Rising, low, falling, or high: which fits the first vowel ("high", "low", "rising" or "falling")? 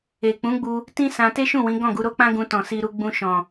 low